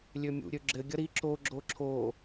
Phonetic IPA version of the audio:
lʲømʲṵ ɾʲøɡ͡ǁɘ ɡʲʌɾi ǁo ɡ͡ǁoǁʰo

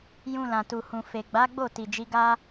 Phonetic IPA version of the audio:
jũ˧lã˨tu˨hũ˨ fe˨ɡ͡ba˨˦ɡ͡bo˦˨ ti˨d͡ʒi˨˦ɡa˦

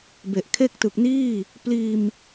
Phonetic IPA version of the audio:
be˨˩ʔkʰe˥˩k̚ tɯ˨˩k̚ niː˥˩ | pliː˧m

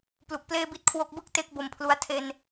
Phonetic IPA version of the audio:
plu˨˩k̚pleː˥˩bi˥˩t̚ kʰwo˦˥k̚bɯ˥˩k̚ te˦˥k̚ bo˨˩mpʰlu˧a̯ tʰe˧n

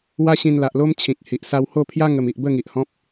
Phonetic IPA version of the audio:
wa˦ɕĩ˧nla˨ʔlo˦m t͡ɕʰĩ˨k̚hi˨ʔ sa˧who˥˧pʰja˦ ŋə˨˩m i˨ʔbə˥˧ŋi˨ʔ hɔ̃˦p̚

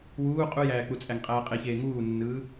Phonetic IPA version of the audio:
wuː qʼujæːk͡put͡sʼæŋ qʼæːqʼeçeː ŋuːnːɯː

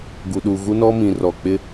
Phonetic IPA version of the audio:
ɡu˨ɗu˨ ɣu˦nɔ˦mĩ˨ rɔ˨k͡pɪ˦

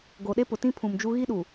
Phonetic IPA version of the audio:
ɡo˨ɗe˦pʊ˨tĩ˦ pʰũ˨md͡ʒu˦ ɣi˦ɗu˨

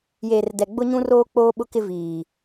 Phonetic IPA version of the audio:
jeː˨rdɛ˨ ɡ͡bʊ˦ɲũ˦roː˦ k͡poː˦ɓʊ˦kɪ˦viː˨

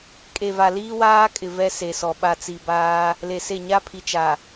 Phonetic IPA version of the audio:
kʼe˨va˨ liː˦waː˦kʼɪ˨ vɛ˦se˨sɔ˨ ɓa˨t͡si˨baː˦ | le˨se˦˨ ɲa˦pʰi˨t͡ʃa˨

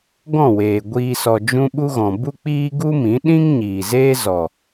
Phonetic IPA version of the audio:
ɡɔ̃˦˨weː˨ɡʷiː˧ sɔ˨d͡ʒũ˧ ɓu˦ɣɔ̃˨ bu˦k͡piː˦ ɡu˦mĩ˨˦ɗĩ˦ŋ ɲiː˨zeː˦zɔ˨

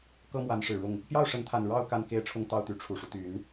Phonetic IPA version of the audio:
kɤ˦mwa˨˦nʂɻ̩˨˩ɻʊ˥˨ŋ | pjɑ˥˨ʊ̯ʂə˨˦nt̪ʰa˨˩n ɻɑ˥˨ʊ̯ ka˥˨nke˦ɪ̯ʈ͡ʂʰʊ˦ŋt̪ɑ˥˨ʊ̯ t̪y˨˦ʈ͡ʂʰu˨˩ʂu˦ t̪y˨˦n

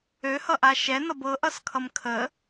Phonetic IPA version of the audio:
øhʌʔa ʃɛnʌb ɤʔʌskʰʌm kʰə

